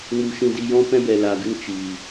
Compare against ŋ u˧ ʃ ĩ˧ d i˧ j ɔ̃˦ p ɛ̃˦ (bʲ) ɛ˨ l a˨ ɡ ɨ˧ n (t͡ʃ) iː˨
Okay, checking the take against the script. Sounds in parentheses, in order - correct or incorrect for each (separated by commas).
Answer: incorrect, correct